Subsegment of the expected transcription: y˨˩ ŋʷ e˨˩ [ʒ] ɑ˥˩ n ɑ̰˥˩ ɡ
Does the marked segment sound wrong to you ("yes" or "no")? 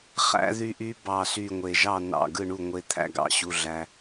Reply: no